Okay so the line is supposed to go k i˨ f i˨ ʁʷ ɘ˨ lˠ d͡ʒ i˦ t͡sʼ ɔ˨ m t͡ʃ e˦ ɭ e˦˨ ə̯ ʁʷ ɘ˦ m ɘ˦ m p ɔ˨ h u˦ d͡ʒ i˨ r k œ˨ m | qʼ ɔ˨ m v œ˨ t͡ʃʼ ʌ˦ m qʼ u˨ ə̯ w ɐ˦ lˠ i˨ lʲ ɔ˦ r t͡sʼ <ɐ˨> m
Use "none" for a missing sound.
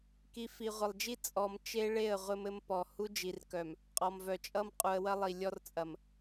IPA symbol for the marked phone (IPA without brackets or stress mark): ɐ˨